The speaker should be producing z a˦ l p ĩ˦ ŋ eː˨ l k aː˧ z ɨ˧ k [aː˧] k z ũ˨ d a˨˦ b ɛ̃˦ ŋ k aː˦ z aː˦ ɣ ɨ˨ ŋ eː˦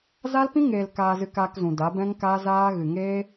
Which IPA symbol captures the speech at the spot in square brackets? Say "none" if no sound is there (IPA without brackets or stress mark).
aː˧